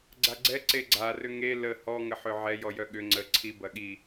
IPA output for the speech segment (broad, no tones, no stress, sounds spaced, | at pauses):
ɡ͡ǀ a ɡ͡ǀ ɛ ǀ e ɡ͡ǀ a r ʏ ŋ e l ə h ɔ ŋ ə ħ ʏ ʕ ɛ j ɔ j œ ɠ ʏ ŋ͡ǀ ə ǀʰ i b ɐ ɠ i